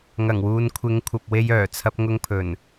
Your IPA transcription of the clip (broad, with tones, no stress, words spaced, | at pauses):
ŋɐ˨˩ŋwuː˨nkʷʰɪ˨˧ŋkʷʰɐ˨p̚ we˧jœː˨˩t͡sʰɐ˧p̚ ŋʊ˧ŋpʰɵ˨˩n